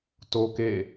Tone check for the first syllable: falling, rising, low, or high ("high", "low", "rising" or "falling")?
high